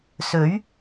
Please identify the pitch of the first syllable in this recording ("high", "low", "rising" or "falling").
rising